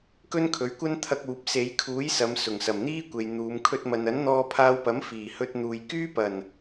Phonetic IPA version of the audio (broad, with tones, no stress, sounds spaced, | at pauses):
k ɵ˥ n kʰ ɵ˨˥ ɥ kʷ ɐ˥ n t̪ʰ ɐ˧ k̚ uː˨ p̚ s e˨˧ j kʰ uː˨˥ j s ɐ˨˧ m s ʊ˨˩ ŋ s ɐ˨˩ m n̪ iː˥ kʷ e˨ j n̪ uː˨˧ m kʰ ɵ˥ t̚ m ɐ˧ n ɐ˨˥ n n̪ ɔː˧ pʰ aː˧ w p ɐ˨˥ m f iː˨˩ h ɵ˧ t̚ n̪ uː˨ j k yː˥ p ɐ˨˩ n